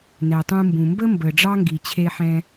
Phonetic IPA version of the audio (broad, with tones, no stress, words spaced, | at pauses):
nɛ˩tˤũ˧mbũ˩ mbə˥mbə˩ ɖ͡ʐɑ˥ŋɡi˩t͡ɕʰe˧ħɛ̃˧